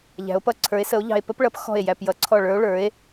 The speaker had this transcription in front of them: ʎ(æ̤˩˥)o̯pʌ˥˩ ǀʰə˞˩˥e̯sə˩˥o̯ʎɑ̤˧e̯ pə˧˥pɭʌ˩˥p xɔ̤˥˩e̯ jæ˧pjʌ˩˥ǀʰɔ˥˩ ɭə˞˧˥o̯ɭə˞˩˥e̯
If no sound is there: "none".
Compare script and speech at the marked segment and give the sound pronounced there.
æ̤˩˥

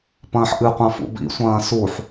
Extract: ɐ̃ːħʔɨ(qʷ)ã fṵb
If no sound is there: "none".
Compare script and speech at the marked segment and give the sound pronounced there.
qʷ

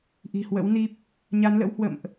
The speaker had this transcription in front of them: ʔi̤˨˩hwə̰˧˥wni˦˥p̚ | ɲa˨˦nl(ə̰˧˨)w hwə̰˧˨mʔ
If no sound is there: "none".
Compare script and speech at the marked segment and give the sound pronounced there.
ə̰˧˥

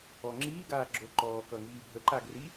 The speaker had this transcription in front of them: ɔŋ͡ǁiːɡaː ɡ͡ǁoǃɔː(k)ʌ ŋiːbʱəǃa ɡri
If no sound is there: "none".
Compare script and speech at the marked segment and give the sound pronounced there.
k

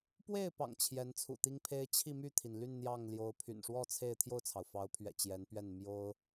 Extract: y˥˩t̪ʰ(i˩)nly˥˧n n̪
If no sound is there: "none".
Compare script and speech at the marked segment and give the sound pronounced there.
i˩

